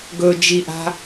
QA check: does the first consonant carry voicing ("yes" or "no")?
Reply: yes